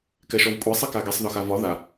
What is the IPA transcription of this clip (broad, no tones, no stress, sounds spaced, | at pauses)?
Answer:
k ɛ ʃ ɔ v kʷʼ ɛ sˤ i k a ɡ i sˤ ð ɒ x a v ɒ ð a